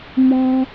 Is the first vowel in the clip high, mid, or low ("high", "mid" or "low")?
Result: mid